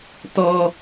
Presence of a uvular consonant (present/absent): absent